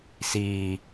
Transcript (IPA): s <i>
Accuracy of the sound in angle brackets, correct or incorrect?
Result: incorrect